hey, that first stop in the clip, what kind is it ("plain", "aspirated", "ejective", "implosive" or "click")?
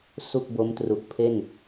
plain